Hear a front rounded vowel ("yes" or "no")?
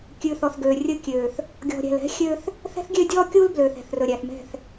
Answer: yes